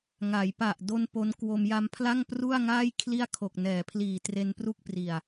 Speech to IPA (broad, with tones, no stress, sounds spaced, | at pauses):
ŋ a˩˦ j p a˨˩ ʔ d o˧ n p o˦˥ n k w o˧ m j a˧ m pʰ l a˥˩ ŋ p r u˥˩ a̯ ŋ aː˥˩ j kʰ l i˥˩ a̯ kʰ o˨˩ k̚ n ɛː˩˦ pʰ l iː˨˩ t r e˧ n p r u˥˩ k̚ p r i˨˩ a̯